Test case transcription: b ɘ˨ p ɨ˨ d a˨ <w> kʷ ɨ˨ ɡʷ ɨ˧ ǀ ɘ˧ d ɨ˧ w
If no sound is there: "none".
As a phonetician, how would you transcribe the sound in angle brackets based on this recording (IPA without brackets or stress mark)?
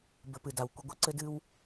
w